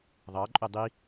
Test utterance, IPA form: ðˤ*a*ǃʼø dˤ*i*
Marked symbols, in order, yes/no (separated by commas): no, yes